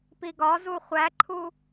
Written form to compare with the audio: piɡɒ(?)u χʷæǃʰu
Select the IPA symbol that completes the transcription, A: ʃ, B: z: B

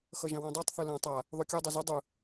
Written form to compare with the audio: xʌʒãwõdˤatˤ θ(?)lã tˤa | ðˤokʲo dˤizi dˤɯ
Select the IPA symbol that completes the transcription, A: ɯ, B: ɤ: A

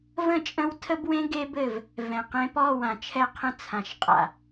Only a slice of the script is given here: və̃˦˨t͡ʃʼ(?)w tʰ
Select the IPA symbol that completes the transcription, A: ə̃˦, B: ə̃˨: A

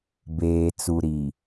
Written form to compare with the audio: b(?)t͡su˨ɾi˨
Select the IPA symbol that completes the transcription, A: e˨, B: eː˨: B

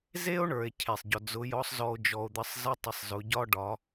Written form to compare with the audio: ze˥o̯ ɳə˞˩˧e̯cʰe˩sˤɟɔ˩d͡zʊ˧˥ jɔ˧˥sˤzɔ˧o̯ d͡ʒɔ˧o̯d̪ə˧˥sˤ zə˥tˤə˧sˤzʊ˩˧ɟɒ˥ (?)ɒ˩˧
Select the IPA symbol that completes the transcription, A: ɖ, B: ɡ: A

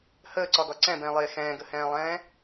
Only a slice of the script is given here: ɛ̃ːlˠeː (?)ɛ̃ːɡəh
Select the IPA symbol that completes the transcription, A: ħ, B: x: B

